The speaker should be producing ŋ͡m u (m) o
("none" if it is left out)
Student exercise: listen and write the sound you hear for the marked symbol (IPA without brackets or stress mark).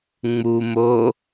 m